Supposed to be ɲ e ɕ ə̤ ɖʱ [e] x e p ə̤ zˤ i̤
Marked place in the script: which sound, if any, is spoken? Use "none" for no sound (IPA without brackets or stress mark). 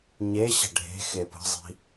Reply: e̤